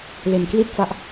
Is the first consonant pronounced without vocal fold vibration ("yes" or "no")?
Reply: no